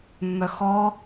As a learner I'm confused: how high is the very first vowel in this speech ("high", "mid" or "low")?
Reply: mid